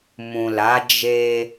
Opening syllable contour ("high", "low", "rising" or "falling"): low